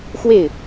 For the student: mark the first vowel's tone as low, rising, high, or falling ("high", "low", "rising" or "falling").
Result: falling